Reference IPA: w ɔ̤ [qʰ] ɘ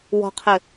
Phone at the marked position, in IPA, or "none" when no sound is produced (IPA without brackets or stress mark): qʰ